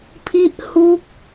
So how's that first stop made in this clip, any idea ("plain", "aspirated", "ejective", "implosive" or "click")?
aspirated